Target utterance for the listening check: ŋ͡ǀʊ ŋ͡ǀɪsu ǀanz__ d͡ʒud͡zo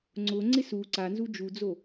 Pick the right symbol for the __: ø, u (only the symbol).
u